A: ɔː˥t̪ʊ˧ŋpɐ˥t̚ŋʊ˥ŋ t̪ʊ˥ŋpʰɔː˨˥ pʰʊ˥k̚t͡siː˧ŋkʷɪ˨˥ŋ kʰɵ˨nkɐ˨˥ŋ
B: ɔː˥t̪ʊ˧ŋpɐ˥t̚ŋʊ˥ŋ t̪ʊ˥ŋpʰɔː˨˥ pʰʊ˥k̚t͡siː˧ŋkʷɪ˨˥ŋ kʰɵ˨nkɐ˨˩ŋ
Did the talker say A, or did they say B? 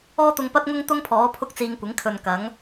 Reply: A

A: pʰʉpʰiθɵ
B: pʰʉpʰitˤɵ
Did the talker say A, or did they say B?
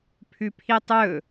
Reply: B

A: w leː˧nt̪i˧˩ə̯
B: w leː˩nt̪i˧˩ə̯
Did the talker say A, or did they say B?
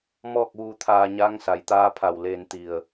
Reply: A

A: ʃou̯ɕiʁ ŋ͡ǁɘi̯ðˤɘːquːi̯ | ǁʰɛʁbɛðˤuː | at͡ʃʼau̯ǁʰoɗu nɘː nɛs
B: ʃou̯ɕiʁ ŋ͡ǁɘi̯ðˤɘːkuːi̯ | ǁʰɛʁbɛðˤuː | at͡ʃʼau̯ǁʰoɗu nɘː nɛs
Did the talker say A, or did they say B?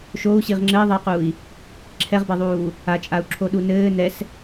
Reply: A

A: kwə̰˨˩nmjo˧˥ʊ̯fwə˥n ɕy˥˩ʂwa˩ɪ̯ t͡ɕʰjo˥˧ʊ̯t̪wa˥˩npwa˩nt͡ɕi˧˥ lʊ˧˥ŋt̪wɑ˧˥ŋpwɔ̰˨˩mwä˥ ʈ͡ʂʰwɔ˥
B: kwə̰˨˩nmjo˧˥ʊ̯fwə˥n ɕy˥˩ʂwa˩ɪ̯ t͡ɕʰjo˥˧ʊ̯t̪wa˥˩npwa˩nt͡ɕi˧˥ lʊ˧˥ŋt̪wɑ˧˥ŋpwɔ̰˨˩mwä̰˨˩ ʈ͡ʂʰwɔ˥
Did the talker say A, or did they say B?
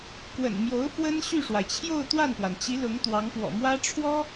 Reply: A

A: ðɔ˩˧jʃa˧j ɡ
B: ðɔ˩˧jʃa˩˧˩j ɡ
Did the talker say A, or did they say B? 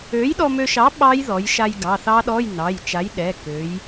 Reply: A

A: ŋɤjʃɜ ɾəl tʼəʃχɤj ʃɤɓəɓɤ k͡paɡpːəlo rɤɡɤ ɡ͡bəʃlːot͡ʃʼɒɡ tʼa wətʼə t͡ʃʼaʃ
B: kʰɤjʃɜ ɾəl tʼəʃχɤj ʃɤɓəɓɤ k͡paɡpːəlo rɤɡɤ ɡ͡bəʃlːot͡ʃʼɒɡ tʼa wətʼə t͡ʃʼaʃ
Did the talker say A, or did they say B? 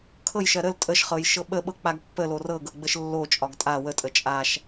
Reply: B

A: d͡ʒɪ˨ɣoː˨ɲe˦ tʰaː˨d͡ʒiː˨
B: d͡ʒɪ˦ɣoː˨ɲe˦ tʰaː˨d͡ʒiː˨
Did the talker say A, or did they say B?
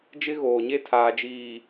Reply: B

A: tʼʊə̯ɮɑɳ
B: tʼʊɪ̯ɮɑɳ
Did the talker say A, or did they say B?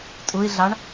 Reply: B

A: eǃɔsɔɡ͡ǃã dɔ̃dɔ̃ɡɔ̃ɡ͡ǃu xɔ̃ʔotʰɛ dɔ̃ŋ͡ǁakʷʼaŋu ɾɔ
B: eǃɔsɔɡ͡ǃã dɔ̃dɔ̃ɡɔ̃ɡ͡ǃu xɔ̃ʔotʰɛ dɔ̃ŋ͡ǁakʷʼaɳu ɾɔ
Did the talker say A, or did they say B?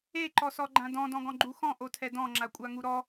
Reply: A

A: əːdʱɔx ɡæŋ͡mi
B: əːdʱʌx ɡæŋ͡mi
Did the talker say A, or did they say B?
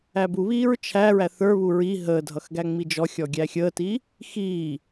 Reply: B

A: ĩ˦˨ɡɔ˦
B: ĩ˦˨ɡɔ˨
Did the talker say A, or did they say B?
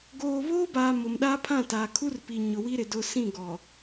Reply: B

